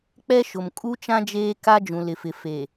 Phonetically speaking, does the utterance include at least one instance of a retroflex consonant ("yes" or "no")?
no